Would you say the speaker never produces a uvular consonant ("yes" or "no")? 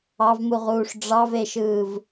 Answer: no